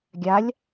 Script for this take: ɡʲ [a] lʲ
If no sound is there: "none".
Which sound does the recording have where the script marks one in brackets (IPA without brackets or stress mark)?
a